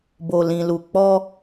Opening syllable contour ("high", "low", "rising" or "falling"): low